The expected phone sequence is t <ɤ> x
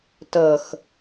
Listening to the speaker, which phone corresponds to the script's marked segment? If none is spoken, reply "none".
ɤ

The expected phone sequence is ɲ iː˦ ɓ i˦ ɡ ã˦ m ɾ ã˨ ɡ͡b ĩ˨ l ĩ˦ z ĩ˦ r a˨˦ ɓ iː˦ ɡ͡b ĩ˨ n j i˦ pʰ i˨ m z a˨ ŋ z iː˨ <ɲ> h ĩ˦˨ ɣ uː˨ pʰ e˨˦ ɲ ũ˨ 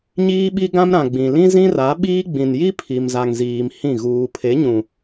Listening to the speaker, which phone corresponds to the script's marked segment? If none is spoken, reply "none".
m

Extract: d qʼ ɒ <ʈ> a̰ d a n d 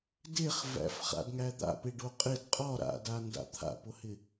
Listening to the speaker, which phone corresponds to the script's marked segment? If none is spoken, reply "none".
ɾ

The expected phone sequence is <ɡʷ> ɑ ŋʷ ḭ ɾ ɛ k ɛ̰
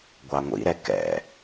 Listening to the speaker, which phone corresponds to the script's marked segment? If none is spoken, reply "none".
ɡʷ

